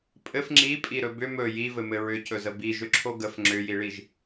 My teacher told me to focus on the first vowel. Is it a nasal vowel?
no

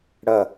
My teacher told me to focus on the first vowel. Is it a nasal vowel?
no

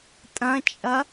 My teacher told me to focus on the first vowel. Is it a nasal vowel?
yes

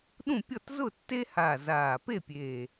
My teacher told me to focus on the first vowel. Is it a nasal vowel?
yes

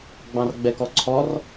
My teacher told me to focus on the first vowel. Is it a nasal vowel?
yes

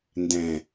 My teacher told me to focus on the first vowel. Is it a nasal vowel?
yes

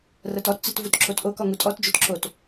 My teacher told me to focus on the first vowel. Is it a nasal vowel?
no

